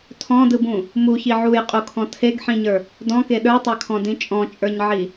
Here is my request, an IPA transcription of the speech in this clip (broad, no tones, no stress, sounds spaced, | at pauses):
tʰ ɔ̃ d ɯ b ũ | m u ç i ʕ u j qʼ u kʰ ɔ̃ tʰ e ɡ ħ ĩ ɲ ə˞ | d ɔ̃ k e ɗ ə˞ tˤ ə˞ kʰ ɔ̃ d ĩ t͡ʃʼ ɔ̃ t͡ʃʼ ə˞ ɲ ʕ i